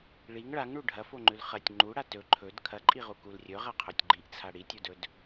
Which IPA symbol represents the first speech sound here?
ɭ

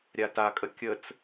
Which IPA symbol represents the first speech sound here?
ɾʲ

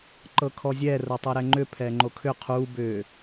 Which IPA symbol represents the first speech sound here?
ǃ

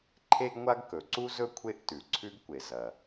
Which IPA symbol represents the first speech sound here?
ǃʰ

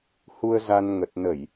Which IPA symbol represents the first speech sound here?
h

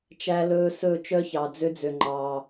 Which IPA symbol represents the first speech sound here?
t͡ʃ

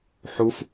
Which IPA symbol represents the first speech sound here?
ħ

